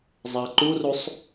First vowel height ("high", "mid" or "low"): low